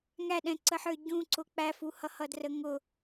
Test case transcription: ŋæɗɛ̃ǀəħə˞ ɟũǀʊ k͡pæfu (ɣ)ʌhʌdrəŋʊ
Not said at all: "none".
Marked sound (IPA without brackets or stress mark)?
h